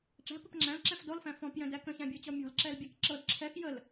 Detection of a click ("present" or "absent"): present